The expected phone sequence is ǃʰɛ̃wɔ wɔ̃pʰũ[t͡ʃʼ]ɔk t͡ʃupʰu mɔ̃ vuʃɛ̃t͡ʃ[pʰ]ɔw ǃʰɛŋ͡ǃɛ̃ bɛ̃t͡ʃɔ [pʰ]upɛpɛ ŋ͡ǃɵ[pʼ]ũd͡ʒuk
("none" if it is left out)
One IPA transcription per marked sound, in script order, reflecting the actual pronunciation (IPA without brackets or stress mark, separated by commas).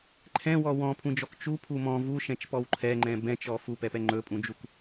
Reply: d͡ʒ, p, f, pʼ